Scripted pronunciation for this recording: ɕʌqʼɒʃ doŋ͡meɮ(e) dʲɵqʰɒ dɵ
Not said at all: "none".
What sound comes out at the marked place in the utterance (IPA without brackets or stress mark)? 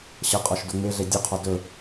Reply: e